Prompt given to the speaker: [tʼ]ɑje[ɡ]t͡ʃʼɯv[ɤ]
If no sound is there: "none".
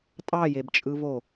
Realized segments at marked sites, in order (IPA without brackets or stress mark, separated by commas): tʼ, b, o